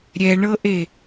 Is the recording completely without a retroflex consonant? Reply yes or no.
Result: no